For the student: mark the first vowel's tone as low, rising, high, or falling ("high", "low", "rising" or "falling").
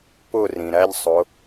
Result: falling